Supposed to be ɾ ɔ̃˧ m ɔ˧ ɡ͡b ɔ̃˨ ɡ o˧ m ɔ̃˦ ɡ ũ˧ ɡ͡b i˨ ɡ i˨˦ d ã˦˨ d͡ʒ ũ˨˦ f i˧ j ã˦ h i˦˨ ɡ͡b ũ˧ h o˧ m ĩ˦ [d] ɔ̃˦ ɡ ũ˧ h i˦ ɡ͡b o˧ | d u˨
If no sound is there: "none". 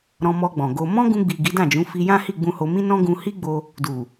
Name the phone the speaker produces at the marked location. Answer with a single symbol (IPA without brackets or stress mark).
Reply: n